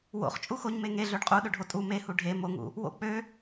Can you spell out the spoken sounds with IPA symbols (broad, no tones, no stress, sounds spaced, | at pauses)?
w o̰ χ t͡ʃʼ u x o ɲ m e ŋ e ɮ ø ɖ qʼ u ɗ ø ɖʱ o tʼ u m e h u ɖʱ e m o ŋ ṵ | w o̰ k͡p ø